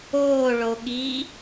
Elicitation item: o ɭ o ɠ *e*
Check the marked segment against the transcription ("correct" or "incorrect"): incorrect